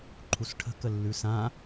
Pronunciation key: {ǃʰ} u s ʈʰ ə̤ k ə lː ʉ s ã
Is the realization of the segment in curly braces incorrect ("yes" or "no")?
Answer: no